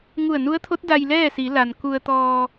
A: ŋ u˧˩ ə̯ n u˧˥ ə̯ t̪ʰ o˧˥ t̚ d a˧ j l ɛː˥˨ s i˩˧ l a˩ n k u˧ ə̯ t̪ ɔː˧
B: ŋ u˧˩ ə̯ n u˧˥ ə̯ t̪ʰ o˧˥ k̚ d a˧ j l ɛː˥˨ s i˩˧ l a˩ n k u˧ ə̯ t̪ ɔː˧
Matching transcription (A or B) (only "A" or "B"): A